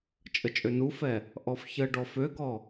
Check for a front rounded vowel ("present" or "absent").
present